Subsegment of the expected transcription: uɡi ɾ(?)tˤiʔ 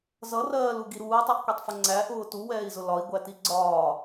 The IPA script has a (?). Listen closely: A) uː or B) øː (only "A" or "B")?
A